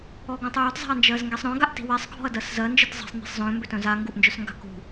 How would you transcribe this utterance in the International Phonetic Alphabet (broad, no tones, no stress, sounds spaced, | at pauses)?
ɔ ɡ œ̃ tˤ j œ t zˤ a̤ ɐ̯ n d͡ʒ ɜ z ŋ ɡ e sˤ ɾ œ̃ ɡ a ʔ t i̤ w e sˤ ɡʱ ɔ̤ ɐ̯ d ɜ s z ɜ n d͡ʒ ɨ t zˤ e̤ sˤ n̪ i̤ sˤ z œ̃ m b ʏ t œ̃ z a ŋ ɡ u ʔ n d͡ʒ œ s ŋ ɡ a̤ k ṳ